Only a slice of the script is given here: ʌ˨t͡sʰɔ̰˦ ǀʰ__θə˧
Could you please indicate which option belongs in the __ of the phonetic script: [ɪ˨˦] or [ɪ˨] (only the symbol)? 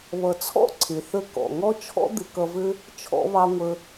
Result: ɪ˨